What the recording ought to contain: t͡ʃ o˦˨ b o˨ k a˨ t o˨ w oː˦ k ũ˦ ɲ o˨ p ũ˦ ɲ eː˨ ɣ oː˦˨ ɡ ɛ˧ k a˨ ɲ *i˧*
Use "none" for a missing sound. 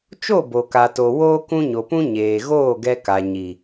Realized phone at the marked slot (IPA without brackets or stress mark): i˨